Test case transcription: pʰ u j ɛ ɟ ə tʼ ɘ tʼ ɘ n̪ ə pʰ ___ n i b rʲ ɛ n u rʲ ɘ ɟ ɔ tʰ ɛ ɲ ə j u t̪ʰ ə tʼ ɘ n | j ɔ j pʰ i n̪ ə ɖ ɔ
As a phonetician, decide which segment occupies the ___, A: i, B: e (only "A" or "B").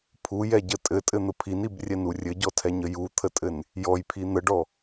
A